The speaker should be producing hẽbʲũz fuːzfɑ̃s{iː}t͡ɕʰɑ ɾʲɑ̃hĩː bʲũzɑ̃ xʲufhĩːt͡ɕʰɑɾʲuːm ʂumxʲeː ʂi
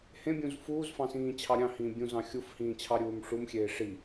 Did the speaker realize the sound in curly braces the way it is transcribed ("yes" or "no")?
no